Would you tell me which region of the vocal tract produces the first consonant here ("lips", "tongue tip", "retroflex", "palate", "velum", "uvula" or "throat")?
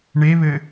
retroflex